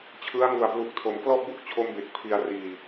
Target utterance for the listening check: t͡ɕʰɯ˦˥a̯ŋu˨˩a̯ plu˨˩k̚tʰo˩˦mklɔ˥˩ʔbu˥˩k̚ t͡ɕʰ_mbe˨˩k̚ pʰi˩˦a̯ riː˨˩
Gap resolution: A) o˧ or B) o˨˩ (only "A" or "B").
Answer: A